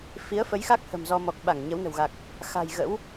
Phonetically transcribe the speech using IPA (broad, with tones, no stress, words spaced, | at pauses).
fi˨˦ə̯fə˨˦jxa˦˥k̚ hə̤˨˩mzɔ˧mɔ˨˩k̚ ɓa˧˩ŋ ɲə˨˦wnə̤˨˩wɣa˨˩k̚ | xa̤˨˩j ɣə̰˧˥w